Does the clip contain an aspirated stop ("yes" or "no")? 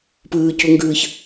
no